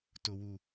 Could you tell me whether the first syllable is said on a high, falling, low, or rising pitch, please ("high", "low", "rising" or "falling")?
high